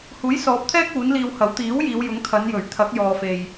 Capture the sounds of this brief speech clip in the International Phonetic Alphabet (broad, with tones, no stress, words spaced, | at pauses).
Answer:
huː˨˥jsɔː˨˥p̚t̪ʰɛː˥k̚ uː˨˥nliː˧whɐ˨˥w t̪iː˨˥w jiː˨˧wjʊ˨˥ŋ t̪ʰɐ˨˧njɵ˨˩ɥ t̪ʰɐ˨˥k̚jɔː˨fe˨j